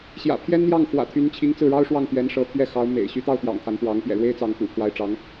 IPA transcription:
ɕjä̰˨˩pʰjɛ˥nn̪jɑ˥˩ŋ xwä̰˨˩t̪ʰy˧˥nt͡ɕʰi˧˥ŋ t͡sɹ̩˥˩ɻɑ˥ʊ̯ʂwɑ˥˩ŋ t̪ɥɛ˧˥nʂɤ˧˥t̪ʰɥɛ˥˩ xɑ˧˥ʊ̯mḛ˨˩ɪ̯ ɕy˧˥t̪ɑ˥˩ʊ̯ t̪jɑ̰˨˩ŋt̪ʰa˧˥npwɑ˧˥ŋ pjɛ̰˨˩ɻwe˥ɪ̯ t͡sɑ˧˥ŋkṵ˨˩pʰwa˧˥ɪ̯ʈ͡ʂɑ˧˥ŋ

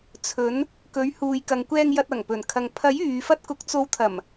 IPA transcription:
t͡sʰɵ˨˧n | kɵ˨˧ɥhuː˨jkɐ˨ŋkʷɛː˧ŋ jɐ˧t̚ɐ˨˩ŋpɵ˨˩nkʰɐ˨ŋ pʰɐ˨˥j yː˨˧fɐ˥t̚kʊ˧k̚ t͡so˨˥wt̪ʰɐ˨˩m

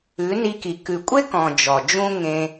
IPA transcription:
ʉ˨˦ni˧ki˨ kʉ˨kʷʼe˦kɔ̃˨ d͡ʒɔ˨d͡ʒũ˦ ŋẽ˧

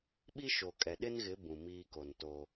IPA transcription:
ɓi˦ʃo˨kʼɛ˨ ɗɪ˦nɣɪ˨˦ bũ˨miː˦ko˨n to˦

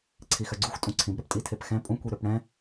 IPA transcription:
ǀʰixœɡ͡ǀuxʷ tʼũǀʰĩb ɾœptʼitʰepxɛ̃ pʼũ kʷiɾøpɽɛ̃

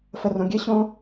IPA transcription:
fərõɡʲɘɕõ

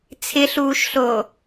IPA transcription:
t͡sʰɪɬuːʃɬoː

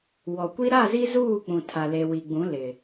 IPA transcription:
wɔ˨kʷi˦ ɾa˦˨zi˦zuː˦˨k͡pũ˨ tʰa˨le˨wi˨ɡ͡bũ˨˦ lɪ˨

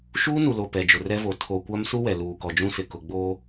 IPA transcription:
ʃuː˦nu˨lo˨ pɛ˨d͡ʒʊ˨rɛ˦vo˨ tʰo˨kʷa˦m su˦wɛ˨ luː˨kɔ˨d͡ʒũ˦sɪ˨ kʊ˨ɡ͡boː˦

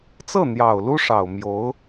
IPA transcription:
t͡sɤ˥˩n̪jɑ˨˩ʊ̯ lu˥ʂɑ˨˩ʊ̯ mjo˧˥ʊ̯

